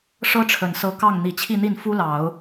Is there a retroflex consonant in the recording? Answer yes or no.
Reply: yes